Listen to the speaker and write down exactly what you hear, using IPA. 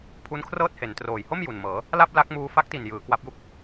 pʰ u˦˥ n kʰ r ɤː˥˩ t̚ h e˩˦ n t r oː˨˩ j h o˥˩ m j u˨˩ n m ɤː˩˦ | l a˥˩ p̚ l a˦˥ k̚ m uː˧ f a˦˥ k̚ t i˨˩ n j ɯː˩˦ k w a˦˥ p̚ j u˥˩ k̚

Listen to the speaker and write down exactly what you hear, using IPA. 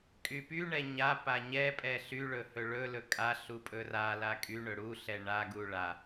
kʼ y p y ɳ ɛ ɲ a p a ɲ ɛ pʼ ɛ ɬ y ɭ ɵ h ɵ ɭ ɵ l ɵ kʼ a ɬ u pʼ ɵ r a l a kʼ y ɳ ɵ ɽ u ɬ ɛ ɳ a ɡ u ɭ a

